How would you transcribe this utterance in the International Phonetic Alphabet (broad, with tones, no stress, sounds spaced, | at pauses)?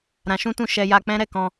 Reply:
ɾ ã˧ ʃ ũ˦ t ũ˦˨ ʃ ɛ˧ j a˧ k͡p ɛ̃˦ ɾ ɛ˦˨ k ɔ̃˧